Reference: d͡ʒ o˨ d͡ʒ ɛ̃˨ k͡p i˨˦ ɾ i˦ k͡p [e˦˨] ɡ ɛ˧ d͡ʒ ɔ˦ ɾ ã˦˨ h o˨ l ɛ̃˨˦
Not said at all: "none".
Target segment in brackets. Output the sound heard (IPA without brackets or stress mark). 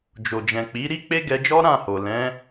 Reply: e˦